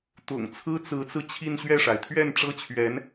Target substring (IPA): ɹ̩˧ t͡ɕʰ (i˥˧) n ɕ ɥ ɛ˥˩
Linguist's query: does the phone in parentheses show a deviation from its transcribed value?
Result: no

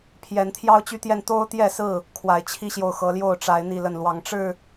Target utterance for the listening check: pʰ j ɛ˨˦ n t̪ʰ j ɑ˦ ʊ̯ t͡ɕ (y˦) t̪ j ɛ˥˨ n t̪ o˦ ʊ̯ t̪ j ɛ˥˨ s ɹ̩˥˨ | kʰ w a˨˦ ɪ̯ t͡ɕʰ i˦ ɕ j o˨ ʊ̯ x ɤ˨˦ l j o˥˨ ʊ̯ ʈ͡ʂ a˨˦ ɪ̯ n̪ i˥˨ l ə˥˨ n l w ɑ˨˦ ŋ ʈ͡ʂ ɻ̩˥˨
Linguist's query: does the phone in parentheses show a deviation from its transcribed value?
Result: yes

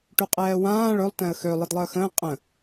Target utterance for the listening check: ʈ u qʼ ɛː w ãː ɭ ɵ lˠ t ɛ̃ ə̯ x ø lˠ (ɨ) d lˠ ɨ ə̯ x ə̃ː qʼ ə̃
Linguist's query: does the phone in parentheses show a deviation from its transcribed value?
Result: no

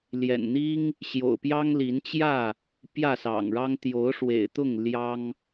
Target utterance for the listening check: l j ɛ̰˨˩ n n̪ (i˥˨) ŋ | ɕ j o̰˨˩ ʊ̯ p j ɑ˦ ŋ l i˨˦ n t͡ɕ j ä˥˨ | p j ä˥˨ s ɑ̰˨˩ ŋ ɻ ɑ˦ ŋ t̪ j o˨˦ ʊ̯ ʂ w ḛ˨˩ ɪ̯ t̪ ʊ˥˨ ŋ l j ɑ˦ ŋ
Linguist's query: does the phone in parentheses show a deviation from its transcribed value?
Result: yes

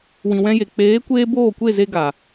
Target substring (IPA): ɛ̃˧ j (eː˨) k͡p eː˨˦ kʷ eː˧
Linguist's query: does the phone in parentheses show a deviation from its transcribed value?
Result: yes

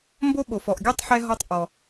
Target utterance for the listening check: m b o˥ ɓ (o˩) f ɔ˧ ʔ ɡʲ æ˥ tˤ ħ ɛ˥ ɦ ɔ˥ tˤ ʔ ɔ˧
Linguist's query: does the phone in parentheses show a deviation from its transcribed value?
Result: yes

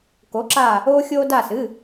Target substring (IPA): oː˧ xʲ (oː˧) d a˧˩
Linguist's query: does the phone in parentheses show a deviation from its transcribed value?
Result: no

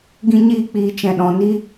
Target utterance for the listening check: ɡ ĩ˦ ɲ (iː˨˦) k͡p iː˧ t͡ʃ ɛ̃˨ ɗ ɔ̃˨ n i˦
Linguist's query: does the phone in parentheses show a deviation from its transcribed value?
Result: yes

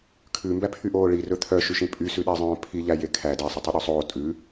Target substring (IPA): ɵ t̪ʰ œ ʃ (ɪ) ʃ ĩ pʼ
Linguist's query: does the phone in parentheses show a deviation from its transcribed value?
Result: yes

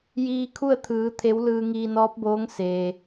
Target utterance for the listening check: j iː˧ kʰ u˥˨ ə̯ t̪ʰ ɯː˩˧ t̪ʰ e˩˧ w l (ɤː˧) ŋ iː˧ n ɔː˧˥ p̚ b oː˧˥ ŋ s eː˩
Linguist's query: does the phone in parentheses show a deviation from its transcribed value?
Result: yes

